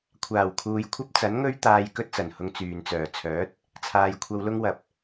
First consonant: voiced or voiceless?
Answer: voiceless